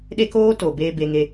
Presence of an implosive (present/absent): present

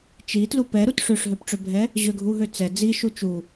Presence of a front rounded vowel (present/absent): present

